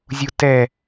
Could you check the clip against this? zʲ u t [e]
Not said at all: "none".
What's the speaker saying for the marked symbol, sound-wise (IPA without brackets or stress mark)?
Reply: ɛ